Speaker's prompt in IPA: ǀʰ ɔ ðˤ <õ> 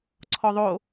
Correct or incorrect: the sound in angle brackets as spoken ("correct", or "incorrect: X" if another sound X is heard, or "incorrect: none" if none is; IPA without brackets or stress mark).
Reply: incorrect: o